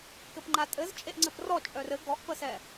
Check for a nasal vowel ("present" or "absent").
absent